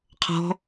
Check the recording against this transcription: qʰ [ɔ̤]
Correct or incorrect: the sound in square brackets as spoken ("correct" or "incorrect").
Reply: correct